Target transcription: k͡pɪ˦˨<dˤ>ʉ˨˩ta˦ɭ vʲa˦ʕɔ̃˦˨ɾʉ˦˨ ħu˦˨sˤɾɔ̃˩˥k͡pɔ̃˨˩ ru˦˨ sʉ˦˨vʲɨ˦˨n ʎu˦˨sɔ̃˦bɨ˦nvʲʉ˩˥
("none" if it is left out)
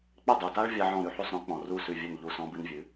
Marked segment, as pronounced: dˤ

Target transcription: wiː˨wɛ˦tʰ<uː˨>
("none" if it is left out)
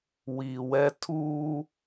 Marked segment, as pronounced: uː˦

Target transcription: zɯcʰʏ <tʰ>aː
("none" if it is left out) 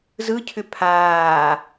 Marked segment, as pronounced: pʰ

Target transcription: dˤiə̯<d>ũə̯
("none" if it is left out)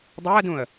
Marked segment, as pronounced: d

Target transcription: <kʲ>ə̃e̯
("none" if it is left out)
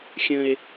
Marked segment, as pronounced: xʲ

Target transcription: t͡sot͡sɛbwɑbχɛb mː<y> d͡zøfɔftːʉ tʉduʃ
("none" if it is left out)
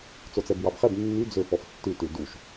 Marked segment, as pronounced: y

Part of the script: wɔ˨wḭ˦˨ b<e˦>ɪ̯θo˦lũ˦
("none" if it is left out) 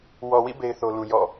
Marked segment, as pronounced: e˦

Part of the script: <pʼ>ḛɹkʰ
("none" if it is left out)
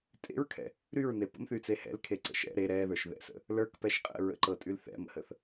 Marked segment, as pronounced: tʼ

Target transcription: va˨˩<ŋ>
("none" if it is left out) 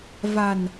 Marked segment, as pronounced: n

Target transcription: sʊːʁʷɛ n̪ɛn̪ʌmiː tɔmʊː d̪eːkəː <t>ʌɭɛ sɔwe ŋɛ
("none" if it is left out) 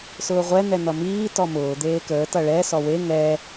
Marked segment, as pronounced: t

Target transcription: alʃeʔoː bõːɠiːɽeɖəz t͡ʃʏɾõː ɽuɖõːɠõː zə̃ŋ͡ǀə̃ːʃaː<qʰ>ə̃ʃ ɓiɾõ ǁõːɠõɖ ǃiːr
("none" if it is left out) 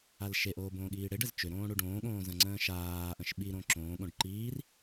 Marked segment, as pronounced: ʔ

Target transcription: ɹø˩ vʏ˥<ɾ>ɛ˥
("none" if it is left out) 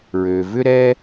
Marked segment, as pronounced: ɾ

